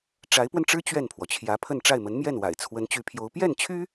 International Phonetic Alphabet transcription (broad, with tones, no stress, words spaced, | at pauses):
ʈ͡ʂa˧˥ɪ̯pwə˧nʈ͡ʂɻ̩˥ t͡ɕɥɛ˥˩npʰwɔ˩t͡ɕʰjä˧˥pʰə˥˧n ʈ͡ʂa˥˩ɪ̯mə˧˥nmjɛ˥˩nwa̰˨˩ɪ̯ t͡sʰwə˧˥nt͡ɕy˧˥pʰjo˧˥ʊ̯ pjɛ˥˩nt͡ɕʰy˥